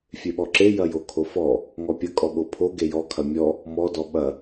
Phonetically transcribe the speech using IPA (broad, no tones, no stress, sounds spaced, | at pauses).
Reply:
fʲ e ɓ ɔ ǁ e j ɐ j o kʰ o f ɔ | ŋ ɔ pʲ ɐ kʼ ɔ ɠ o pʰ o ɡ e j ɔ kʰ ɐ mʲ ɔ | m ɔ d ɔ ɓ ɐ